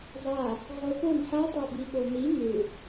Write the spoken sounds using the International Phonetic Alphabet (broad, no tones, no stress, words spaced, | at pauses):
zˤa | ʁopon ħa tˤabiɓoni ŋɨ